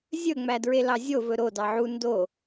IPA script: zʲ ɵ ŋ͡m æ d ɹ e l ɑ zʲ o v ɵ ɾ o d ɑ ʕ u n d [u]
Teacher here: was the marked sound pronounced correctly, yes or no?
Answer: no